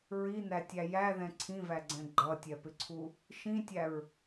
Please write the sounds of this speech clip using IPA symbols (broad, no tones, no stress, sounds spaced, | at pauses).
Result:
ɹ i n̪ æ tʲ æ j æ ð ɛ̃ ǀʰ ĩ v æ ɡ͡ǀ ɛ̃ ɡ͡ǃ ʌ tʲ ɛ p ɪ ǀʰ u | ʃ ĩ tʲ æ ɹ